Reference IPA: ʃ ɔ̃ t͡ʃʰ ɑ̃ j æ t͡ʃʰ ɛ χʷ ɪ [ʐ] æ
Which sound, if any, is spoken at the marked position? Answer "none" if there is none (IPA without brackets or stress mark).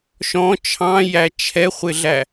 ɮ